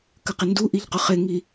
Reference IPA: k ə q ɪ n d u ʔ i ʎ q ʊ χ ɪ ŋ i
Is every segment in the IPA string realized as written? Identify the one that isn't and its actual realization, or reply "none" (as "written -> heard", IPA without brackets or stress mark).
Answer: none